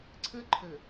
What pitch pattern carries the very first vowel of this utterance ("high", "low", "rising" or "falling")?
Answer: high